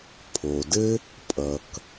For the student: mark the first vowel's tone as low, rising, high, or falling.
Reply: low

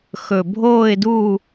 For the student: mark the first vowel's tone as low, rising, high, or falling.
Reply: low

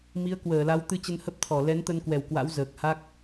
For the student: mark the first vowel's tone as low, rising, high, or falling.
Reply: rising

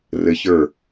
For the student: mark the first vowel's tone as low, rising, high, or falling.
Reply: rising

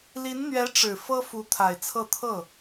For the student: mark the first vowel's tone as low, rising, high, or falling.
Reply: rising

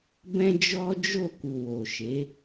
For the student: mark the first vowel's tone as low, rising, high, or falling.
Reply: high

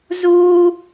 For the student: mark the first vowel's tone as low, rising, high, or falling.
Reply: high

